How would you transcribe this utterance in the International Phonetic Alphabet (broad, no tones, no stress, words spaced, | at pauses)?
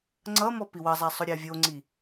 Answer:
ŋ͡ǀʌmɔ piwʌzˤa sˤʊɾʲavʲoŋ͡ǀi